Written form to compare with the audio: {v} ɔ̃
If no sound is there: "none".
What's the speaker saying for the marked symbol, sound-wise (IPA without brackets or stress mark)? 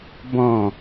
b